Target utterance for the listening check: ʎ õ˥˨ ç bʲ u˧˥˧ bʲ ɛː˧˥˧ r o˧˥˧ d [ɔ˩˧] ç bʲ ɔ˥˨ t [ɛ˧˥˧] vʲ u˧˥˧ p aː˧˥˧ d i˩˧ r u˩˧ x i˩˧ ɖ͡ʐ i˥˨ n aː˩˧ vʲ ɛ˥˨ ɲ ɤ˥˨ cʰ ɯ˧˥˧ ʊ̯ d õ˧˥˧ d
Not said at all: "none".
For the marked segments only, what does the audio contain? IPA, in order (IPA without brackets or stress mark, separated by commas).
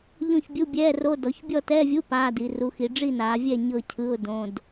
ɔ˩˧, ɛ˧˥˧